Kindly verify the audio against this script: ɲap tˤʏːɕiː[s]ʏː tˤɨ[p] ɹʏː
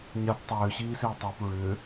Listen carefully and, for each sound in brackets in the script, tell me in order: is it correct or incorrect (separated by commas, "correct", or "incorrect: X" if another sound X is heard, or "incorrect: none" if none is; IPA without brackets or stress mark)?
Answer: correct, correct